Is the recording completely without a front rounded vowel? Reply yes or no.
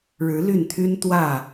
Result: no